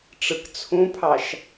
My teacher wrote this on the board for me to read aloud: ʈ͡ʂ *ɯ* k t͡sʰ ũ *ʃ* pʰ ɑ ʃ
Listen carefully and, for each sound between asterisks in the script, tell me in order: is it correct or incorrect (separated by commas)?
correct, incorrect